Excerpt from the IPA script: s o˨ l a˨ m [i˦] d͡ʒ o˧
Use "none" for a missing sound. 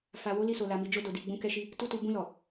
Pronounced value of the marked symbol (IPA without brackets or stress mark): i˨